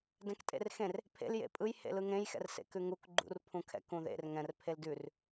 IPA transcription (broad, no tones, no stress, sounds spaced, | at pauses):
d ɛ̃ k tʼ ḛ r x ẽ r | pʰ ḛ l j ḛ pʼ ɯ j h ḛ l ɯ ŋ ẽ j x ɛ̰ r s ḛ k ʉ ŋ u k ɡ͡ǃ ṵ r pʰ ũ kʰ ɛ̰ k ũ ð ḛ r ŋ ɛ̃ r pʰ e l d ʉ r